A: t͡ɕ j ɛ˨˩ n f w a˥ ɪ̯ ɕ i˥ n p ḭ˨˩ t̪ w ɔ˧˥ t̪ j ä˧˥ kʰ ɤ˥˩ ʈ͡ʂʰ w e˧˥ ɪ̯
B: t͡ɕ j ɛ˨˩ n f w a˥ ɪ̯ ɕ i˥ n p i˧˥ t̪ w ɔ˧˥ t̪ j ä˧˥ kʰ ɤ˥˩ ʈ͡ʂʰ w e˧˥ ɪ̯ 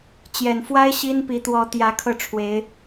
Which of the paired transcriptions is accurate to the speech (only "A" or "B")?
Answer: B